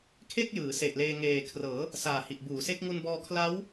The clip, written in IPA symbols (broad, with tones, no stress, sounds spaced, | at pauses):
kʰ e˥˩ k̚ j ɯː˩˦ s e˨˩ ʔ l eː˧ ŋ eː˨˩ kʰ r ɤː˩˦ | s aː˨˩ h i˨˩ ʔ b uː˩˦ s e˦˥ k̚ ŋ u˧ n b ɔː˧ kʰ l a˦˥ w